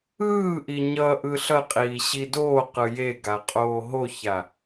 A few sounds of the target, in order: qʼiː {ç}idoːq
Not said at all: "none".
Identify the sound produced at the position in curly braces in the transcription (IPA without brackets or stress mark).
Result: ɕ